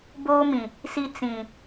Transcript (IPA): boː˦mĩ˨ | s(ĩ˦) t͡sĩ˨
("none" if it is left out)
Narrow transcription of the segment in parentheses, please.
i˦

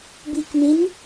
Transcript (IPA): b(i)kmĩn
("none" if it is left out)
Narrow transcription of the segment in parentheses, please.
i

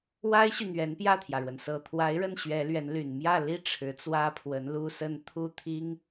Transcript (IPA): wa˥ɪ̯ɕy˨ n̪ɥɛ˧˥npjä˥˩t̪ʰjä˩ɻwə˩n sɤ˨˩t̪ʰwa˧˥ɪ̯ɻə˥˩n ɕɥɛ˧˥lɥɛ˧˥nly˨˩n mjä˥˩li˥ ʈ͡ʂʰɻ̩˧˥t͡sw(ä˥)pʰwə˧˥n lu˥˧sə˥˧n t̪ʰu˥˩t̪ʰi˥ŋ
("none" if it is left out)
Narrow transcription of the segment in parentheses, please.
ä˥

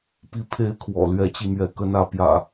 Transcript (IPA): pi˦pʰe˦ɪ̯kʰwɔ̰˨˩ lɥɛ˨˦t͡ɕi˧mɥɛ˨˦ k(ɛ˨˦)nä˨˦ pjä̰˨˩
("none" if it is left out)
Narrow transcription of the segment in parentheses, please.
ə˨˦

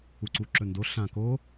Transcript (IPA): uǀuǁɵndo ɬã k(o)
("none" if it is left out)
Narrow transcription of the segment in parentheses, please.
o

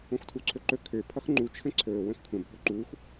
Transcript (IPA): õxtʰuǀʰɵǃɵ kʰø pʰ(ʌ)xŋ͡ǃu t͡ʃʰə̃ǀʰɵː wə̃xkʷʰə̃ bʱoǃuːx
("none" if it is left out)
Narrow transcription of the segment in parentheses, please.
ʌ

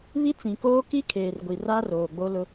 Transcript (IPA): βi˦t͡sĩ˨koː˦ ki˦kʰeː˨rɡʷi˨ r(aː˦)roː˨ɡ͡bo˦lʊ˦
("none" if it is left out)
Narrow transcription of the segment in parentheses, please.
a˦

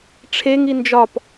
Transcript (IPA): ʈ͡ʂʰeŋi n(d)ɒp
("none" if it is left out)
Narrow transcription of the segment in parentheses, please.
d͡ʒ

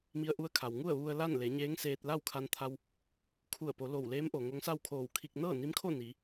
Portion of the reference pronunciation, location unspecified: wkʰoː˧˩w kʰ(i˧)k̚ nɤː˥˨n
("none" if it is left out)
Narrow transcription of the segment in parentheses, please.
i˧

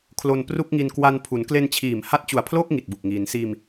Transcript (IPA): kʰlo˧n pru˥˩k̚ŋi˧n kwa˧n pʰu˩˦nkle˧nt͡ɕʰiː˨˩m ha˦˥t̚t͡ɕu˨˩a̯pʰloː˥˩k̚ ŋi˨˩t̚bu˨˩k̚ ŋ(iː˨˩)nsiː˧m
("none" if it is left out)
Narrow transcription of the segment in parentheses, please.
iː˩˦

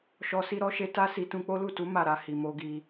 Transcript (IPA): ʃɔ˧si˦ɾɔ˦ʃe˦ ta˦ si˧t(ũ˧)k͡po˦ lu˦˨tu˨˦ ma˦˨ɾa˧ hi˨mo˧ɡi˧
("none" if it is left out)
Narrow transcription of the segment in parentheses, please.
ũ˧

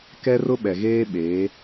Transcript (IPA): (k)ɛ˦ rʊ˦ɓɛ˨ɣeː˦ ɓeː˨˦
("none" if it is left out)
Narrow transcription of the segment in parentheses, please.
k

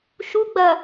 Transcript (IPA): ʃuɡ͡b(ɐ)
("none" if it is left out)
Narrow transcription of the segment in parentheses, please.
ɐ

